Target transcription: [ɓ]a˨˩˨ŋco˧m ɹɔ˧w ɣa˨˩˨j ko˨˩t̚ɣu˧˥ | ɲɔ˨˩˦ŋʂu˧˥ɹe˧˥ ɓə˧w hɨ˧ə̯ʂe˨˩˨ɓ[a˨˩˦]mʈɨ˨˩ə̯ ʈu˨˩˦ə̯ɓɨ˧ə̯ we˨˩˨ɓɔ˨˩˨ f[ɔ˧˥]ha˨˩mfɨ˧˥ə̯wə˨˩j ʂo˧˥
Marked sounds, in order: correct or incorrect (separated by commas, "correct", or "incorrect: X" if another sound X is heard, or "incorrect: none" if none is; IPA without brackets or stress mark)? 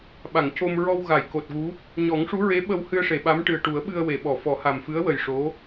correct, incorrect: a˧˥, incorrect: ɔ˨˩˦